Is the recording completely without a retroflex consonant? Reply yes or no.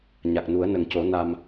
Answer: yes